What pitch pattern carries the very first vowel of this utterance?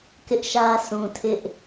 high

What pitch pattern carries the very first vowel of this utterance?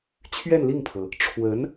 falling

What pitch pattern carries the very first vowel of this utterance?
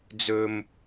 high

